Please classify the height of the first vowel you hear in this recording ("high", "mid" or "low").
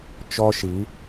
mid